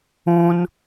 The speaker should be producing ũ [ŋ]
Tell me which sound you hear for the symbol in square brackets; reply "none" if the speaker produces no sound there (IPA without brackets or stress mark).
n